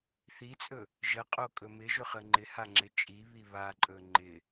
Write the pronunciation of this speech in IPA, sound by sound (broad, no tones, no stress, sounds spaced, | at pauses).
θ i t͡sʼ ɵ | ʒ ə qʼ o kʼ ɵ m ɪ ʒ ɵ χ ə ŋ͡ǃ ɪ h a ŋ͡ǁ ɪ t͡ʃʼ i β i β a ǃʼ ɵ ŋ͡ǃ ɪ